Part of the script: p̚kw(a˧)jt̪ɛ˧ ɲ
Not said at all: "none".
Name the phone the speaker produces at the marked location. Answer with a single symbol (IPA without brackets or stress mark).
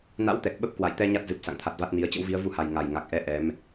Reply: a̰˧˨